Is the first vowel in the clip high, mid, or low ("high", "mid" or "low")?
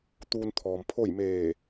high